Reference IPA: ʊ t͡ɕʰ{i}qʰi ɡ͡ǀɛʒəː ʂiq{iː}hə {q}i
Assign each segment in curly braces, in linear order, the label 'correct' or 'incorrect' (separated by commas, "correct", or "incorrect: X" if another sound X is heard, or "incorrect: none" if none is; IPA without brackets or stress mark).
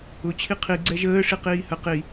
correct, correct, correct